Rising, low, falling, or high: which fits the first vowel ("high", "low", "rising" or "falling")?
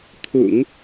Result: low